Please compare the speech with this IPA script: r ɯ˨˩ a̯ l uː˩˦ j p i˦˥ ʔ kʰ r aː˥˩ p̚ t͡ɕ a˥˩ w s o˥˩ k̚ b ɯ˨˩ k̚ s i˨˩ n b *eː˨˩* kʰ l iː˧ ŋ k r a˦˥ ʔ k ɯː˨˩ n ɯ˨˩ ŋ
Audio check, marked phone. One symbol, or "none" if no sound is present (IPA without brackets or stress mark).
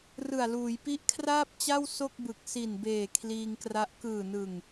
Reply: eː˨˩